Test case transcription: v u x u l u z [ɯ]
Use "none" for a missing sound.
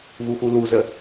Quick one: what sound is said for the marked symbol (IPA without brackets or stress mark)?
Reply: ə